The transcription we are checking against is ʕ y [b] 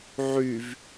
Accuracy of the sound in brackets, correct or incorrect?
incorrect